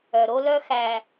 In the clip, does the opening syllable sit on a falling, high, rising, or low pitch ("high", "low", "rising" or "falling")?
low